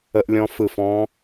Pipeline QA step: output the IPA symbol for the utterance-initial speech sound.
ə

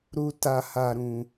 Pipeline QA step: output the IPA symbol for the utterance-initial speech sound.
ɾ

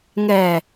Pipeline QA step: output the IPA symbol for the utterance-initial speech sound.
ŋ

